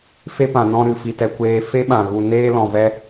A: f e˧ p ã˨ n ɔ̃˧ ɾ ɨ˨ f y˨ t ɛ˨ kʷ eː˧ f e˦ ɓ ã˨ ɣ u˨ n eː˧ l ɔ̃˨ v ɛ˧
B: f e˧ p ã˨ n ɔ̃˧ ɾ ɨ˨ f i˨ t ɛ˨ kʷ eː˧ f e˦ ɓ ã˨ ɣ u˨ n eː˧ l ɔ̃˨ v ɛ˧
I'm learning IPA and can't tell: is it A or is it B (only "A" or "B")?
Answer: B